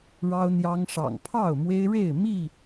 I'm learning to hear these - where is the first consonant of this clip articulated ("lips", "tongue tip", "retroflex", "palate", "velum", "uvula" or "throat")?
retroflex